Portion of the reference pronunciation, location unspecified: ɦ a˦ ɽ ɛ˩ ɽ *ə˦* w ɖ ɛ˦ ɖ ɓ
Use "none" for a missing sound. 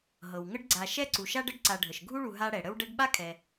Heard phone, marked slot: ə˦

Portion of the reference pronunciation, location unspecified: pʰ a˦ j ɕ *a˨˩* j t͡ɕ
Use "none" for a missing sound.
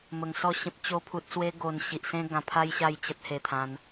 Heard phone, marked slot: a˥˧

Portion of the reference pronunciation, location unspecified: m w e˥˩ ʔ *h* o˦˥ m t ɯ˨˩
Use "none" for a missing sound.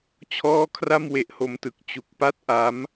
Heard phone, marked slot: h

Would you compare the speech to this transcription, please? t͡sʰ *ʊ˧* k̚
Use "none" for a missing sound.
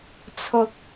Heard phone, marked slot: ʊ˧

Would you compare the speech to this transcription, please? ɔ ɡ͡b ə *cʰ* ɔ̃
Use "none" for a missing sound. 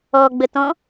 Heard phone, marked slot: t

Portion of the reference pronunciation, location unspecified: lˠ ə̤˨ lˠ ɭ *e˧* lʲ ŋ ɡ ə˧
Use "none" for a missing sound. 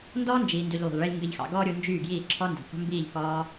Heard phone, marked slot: e˧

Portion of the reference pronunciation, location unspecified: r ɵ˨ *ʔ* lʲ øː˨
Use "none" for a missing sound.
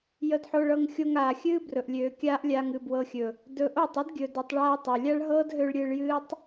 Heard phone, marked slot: ʔ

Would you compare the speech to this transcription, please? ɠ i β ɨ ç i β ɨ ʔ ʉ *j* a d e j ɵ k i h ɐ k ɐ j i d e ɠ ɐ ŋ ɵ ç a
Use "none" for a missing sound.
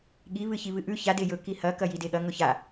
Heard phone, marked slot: ç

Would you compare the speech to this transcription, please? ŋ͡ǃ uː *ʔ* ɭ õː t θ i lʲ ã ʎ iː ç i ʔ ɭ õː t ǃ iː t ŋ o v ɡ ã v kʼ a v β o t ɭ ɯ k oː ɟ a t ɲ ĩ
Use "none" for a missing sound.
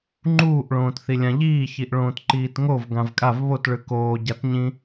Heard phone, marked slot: ʔ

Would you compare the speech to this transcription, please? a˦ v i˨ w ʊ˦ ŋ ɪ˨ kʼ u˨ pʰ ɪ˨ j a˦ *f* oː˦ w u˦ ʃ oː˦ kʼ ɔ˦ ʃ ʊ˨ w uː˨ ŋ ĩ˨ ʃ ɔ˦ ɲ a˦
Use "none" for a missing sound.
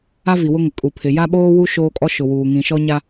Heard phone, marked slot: ɓ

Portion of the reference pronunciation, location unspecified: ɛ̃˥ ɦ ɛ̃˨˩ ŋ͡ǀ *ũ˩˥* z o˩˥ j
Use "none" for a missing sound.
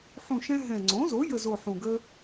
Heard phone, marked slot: õ˩˥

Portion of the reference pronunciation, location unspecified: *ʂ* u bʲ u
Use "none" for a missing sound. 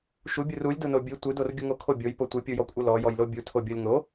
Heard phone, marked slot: ʃ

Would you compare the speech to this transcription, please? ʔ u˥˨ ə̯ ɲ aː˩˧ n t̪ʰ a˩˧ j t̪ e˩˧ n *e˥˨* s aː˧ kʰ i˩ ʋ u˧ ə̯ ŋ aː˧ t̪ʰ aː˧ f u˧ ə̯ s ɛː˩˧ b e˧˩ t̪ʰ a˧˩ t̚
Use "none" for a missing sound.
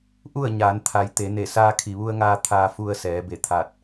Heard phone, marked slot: e˧˩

